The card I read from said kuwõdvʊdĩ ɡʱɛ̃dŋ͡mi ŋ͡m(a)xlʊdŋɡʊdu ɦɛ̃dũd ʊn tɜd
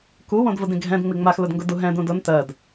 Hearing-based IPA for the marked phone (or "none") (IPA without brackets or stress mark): a